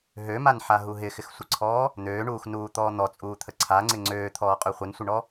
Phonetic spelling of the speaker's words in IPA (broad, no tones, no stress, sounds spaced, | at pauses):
ɦ ø m a n ħ a ɦ u ɦ ɪ x ɪ x sʷ ə ǀʰ ɔː | n̪ øː ɳ uː x n uː t̪ ɔː n̪ ɔ t͡sʼ uː t̪ʰ ə ǀʰ a ŋ͡ǀ ɪ ŋ͡ǀ øː t̪ʰ ɔː qʼ ø χʷ ɪ n sʷ ə ɳ ɔ